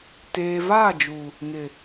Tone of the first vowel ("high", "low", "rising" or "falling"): low